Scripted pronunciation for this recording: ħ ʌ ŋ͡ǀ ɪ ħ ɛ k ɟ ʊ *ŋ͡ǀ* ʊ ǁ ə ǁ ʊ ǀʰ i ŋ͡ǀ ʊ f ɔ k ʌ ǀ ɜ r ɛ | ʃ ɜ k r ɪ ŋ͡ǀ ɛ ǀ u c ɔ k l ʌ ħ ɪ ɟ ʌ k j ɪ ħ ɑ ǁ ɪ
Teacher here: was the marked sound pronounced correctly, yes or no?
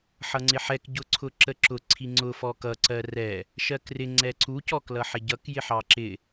no